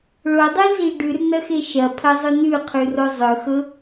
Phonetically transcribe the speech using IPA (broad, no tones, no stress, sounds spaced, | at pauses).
ɭ o dˤ e z i ɖ ʉ r n ɐ x e ʃ ɐ pʰ ɐ zˤ ɵ n ʉ qʰ ʉ r o zˤ ɵ x ɵ